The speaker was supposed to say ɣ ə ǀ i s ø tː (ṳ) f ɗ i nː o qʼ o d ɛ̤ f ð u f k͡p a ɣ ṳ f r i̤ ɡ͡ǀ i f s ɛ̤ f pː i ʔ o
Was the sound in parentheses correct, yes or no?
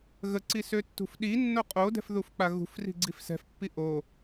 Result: yes